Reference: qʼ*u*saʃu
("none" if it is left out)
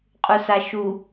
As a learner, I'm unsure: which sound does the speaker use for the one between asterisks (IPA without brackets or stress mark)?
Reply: u